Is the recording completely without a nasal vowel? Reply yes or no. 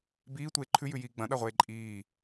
no